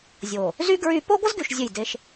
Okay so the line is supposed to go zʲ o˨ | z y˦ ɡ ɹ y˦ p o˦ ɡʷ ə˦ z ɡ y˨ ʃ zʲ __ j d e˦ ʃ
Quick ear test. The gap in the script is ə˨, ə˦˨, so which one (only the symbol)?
ə˦˨